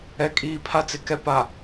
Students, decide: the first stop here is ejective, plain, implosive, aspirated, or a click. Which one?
ejective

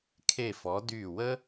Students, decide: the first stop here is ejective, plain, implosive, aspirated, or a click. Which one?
aspirated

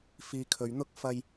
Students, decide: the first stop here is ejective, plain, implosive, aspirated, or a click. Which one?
aspirated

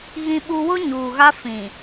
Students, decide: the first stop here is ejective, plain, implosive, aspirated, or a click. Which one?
implosive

